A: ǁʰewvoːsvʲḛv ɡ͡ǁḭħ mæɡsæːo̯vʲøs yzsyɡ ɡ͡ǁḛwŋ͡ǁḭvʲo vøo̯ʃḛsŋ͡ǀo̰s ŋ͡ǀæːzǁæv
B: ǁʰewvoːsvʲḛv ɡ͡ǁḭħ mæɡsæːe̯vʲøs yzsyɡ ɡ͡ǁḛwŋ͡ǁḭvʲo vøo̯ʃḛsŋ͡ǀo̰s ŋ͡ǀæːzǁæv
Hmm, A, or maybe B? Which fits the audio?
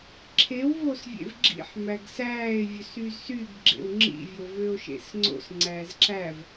B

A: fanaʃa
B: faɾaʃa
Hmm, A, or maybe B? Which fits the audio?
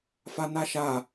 A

